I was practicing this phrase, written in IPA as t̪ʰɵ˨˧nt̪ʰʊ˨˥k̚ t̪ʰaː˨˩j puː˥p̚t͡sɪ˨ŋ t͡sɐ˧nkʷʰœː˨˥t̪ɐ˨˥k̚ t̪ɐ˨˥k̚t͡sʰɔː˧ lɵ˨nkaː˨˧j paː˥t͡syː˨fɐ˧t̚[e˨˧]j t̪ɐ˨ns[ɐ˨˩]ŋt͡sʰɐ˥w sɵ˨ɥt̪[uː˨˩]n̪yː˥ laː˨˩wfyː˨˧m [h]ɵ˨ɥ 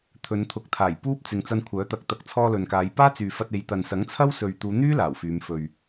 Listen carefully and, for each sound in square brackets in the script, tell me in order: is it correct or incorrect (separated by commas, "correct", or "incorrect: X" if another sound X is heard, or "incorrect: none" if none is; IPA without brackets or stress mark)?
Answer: correct, incorrect: ɐ˨˥, incorrect: uː˨˧, incorrect: f